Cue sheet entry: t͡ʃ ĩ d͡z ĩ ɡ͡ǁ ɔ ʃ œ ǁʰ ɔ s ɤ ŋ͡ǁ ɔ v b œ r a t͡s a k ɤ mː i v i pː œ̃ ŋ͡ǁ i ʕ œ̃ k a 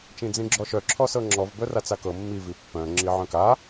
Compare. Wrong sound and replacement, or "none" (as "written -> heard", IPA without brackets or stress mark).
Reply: none